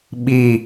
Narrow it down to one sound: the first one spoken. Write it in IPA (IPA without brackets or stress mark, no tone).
ɓ